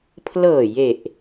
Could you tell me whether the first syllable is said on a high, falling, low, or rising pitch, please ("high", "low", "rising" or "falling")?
low